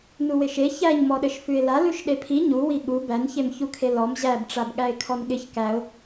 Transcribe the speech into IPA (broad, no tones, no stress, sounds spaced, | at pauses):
n u w ɪ ʃ e ç æ ɲ m ɔ ɗ ɘ ʃ f ʉ ɪ̯ l a l ʉ ʃ ɗ e pʰ i ɲ u w i ɠ u b æ n ç e m ç u kʰ e l ɔ m ʑ æ b ʈ͡ʂ a b ɠ æ ɪ̯ kʰ ɔ n ɠ ɪ ç k æ ʊ̯